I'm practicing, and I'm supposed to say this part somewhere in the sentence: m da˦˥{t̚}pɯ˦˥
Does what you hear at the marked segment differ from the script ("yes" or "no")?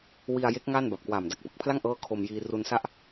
yes